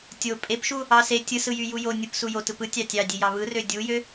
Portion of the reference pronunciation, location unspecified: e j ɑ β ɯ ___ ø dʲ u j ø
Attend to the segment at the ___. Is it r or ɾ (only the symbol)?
r